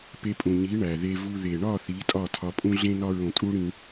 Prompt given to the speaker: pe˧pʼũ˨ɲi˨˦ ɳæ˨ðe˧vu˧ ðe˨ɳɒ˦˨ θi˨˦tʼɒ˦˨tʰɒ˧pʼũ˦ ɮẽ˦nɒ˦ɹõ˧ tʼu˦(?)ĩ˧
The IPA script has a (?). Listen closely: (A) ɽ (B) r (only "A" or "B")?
A